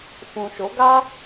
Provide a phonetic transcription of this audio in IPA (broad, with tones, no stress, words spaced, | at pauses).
fũ˨ʃo˨˦ɡa˦